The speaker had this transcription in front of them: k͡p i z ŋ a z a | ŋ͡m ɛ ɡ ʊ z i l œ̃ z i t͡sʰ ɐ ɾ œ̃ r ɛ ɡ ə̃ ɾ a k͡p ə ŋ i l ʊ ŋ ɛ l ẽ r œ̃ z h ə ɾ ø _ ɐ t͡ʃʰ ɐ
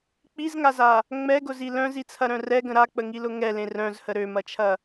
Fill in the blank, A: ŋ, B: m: B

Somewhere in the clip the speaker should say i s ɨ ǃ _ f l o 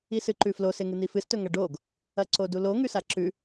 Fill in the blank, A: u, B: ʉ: B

